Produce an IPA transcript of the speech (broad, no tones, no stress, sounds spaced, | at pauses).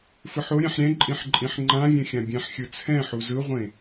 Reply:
f ɯ ħ o ɾʲ ɛ̃ ħ ɾʲ ɛ̃ ǃʼ ĩ ħ ǃʼ ĩ ħ ŋ͡ǃ ã vʲ ɛ̃ xʲ ã bʲ ɛ̃ ħ xʲ ɯ t͡sʰ ɛ̃ ħ u z ɯ ʁʷ ẽ